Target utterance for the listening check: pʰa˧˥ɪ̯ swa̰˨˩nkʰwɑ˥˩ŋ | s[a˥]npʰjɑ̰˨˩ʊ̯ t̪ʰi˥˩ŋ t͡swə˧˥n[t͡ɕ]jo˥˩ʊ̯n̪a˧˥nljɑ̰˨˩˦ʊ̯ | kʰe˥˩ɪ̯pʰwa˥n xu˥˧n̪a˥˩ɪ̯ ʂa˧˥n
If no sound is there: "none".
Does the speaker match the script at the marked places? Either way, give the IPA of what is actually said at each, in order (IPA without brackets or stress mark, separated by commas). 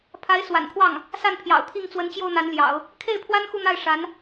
a˥˩, t͡ɕ